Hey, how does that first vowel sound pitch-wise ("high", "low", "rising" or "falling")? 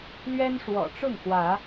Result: high